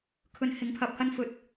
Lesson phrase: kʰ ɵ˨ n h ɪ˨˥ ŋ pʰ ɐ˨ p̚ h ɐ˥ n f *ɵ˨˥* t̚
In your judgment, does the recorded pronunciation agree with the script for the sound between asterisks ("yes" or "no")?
no